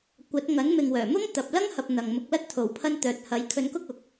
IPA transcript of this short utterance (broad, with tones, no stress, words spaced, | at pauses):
kʷɐ˨˥t̚ ŋɐ˨˥nmɪ˨ŋwœː˨˩mʊ˥ŋ t̪ɐ˨p̚lɐ˥ŋhɐ˨p̚ n̪ɐ˨ŋmʊ˧k̚lɐ˥t̚ t̪ʰo˨˩wpʰɐ˧n t̪œː˨t̚hɐ˨˥jkʰɵ˧nkʊ˥k̚ ʊ˨k̚